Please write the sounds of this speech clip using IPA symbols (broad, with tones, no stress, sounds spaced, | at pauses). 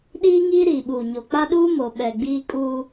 ɗ iː˦ ŋ iː˦ ɾ iː˨ ɓ uː˨ ɲ o˨ k͡p a˦ ɗ uː˦ m o˨ ɓ ɛ˨ ɡ͡b iː˦ kʼ uː˦